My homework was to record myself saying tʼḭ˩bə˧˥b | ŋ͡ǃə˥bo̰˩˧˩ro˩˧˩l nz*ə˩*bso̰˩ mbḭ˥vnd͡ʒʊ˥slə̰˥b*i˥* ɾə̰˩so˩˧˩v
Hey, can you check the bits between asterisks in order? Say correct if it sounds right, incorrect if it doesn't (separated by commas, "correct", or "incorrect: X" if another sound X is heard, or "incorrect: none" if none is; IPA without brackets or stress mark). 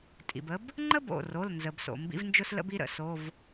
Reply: correct, correct